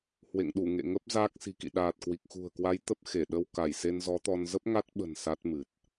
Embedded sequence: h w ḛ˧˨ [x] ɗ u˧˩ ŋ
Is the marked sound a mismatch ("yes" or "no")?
yes